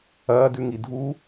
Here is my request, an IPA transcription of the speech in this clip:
ɐː d ʉ ŋ i dʱ u

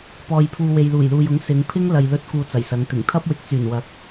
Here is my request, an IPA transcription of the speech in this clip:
p ɔː˧ j pʰ uː˧ w e˨ j l uː˨˩ j l uː˨ j ʊ˨˥ ŋ s ɪ˨˧ ŋ pʰ ɪ˥ ŋ l ɐ˨ j l ɵ˧ t̚ k uː˧ t͡s ɐ˨˩ j s ɐ˨˧ ŋ t̪ ɪ˨˩ ŋ t̪ʰ ɐ˥ p̚ w ɪ˨˥ k̚ t͡s yː˨˩ n w ɐ˨˥ k̚

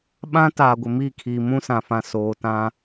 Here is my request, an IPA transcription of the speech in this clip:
ɓ ã˦ t aː˨ ɡʷ ɪ˨ m i˦˨ kʰ iː˨ m ũ˦ s ã˨ f ã˨ s oː˨ t ã˦

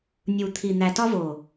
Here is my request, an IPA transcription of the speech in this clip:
nʲ u˨ t̪ʰ i˨ n̪ æ˨ t ɒ˦ v o˨

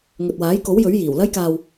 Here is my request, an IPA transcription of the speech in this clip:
ŋ ɵ˨ t̚ w aː˨˥ j k o˨˥ w j ɵ˨˥ ɥ j iː˨˩ w l ɐ˧ j k aː˨ w

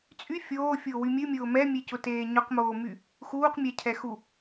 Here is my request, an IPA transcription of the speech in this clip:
t͡sʼ y fʲ oː fʲ ʊː w y mʲ ɨ mʲ ʊː m ɛ mʲ e c ʊ t eː ɲ ʊ q m oː m y | x uː q mʲ ɛ cʰ ɛ x u

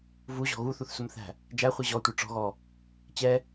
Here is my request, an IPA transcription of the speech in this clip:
v u ʑ ɔ̤ ɣ u θ u θ s ʊ m θ æ̤ | d͡ʒ æ χʷ i ʑ ɔ tʷ ə˞ ʈ͡ʂ ɔ̤ ɣ ɔ | t͡ɕ ɛ

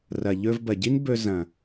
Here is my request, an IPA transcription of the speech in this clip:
r ɐ˨ ʎ ɵ˧ v b ɐ˨ ɟ i˦ n b ɵ˧ z ɐ̃˨

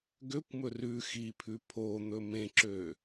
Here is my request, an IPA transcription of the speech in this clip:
ɡ ø kʷ m ɵ r ʉ x i pʰ ʉ pʰ o n̪ ɵ m ẽ ǁ ø

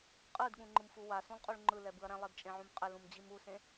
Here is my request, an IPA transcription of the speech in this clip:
qʼ ɯ d ɠ ũ ŋ͡ǃ ɯ m f u w a s ũ lˠ qʼ u ɭ ŋ͡ǃ ɯ l ɛ b ɯ ɐ̯ ɾ ɛ̃ lˠ e d t͡ʃʼ ẽ ʕ ũ m qʼ ɛ l ũ m d͡ʑ i m u s ẽ

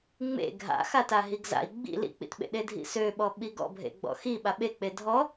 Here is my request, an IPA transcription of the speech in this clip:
ŋ͡m ḛ ɡʱ a̰ x a t a ɦ i ɡ z a̰ i̯ ɡ͡b ḭ l ḭ k͡p ḭ t ɓ ḛ ɗ e dʱ ḭ s ø ɓ ɔ ɓ i ɡ ɔ̰ bʱ ḛ ɡ͡b ɔ̰ x i ɓ a ɓ e k͡p e dʱ ɔ

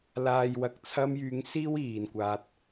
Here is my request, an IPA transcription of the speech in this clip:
l aː˨ j w ɐ˨ k̚ t͡sʰ ɐ˧ m j yː˨˧ ŋ s iː˥ w iː˨ n kʷ aː˧ t̚

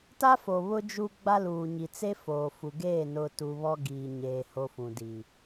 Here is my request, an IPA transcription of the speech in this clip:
t a˦ f o˨ β ʊ˦ d͡ʒ u˦ ɡ͡b a˦ l uː˨ ɲ i˨ t͡s e˦ f oː˨ f u˨ ɡ eː˦˨ n ʊ˨ t u˦ β ɔ˦ ɡ iː˨ ɲ eː˨ h o˦ f ũ˨ d i˨

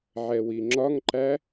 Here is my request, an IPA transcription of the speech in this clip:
ʕ ɛ w i ŋ͡ǁ ɒ ŋ ǃ æ

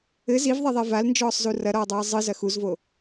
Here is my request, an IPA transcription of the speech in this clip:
ɘ z i v ðˤ e ðˤ ɛ v a l n d͡ʒ ɔː sˤ z u r ɐ ɾ ɔː dˤ ɛː zˤ ɨ z ɐ x u z v o

